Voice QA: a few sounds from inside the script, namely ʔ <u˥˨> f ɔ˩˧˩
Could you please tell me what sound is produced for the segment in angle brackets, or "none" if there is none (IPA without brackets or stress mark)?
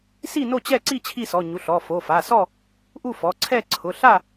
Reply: u˥˨